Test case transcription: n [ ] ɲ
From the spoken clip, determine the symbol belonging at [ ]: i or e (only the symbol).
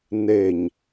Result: e